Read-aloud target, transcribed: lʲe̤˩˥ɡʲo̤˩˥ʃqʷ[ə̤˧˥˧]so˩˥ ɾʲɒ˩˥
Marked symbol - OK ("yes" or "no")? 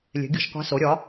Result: no